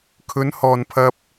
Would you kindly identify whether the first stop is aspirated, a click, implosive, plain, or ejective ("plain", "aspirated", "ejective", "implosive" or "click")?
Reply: aspirated